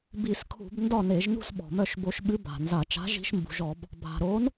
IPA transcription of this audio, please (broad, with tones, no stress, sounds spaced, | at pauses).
b i˧˩˧ s kʰ ṳ˧˩˧ b n d ɒ˥˨ n e˧˩˧ ʒ n ṳ˥˨ s ɓ ɔ̤˩ m œ˥˨ ʃ b o˧˩˧ ʃ ɓ ɨ˨˥ b a̤˩ n z a˧˩˧ t͡ʃ a̤˨˥ ʒ i̤˨˥ ʃ m b ṳ˩ ʒ ɔ˧˩˧ b | bʱ a̤˩ ɾ o˨˥ n